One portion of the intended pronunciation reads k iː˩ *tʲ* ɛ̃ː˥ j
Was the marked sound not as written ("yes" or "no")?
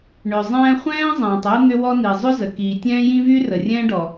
no